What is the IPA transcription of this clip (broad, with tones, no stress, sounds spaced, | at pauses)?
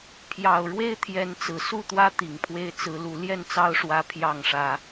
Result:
pʰ j ɑ˨˩ ʊ̯ ɻ w e˦ ɪ̯ t̪ʰ j ɛ˨˦ n t͡s ɹ̩˨˩ s u˥˨ t̪ w ä˦ t̪ i˨˩ ŋ pʰ w e˦ ɪ̯ t͡s ɹ̩˨˦ l u˨˦ l j ɛ˥˨ n t͡s ɑ˦ ʊ̯ ʂ w ä˦ pʰ j ɑ˥˨ ŋ ʂ ä˦